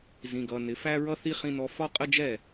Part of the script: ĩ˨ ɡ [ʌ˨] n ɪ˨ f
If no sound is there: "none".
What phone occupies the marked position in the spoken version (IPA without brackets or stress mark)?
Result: ʌ˨